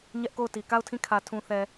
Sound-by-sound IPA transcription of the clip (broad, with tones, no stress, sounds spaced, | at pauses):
ɲ ɛ˦ ʔ k o˦˨ ʊ̯ t i˨ k a˦˨ ʊ̯ tʰ ĩ˦˨ kʰ ä˨ tʰ ũ˨ θ ɛ˨